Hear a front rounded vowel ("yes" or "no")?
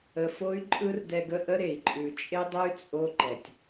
yes